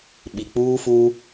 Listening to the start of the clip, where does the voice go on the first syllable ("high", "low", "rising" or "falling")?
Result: low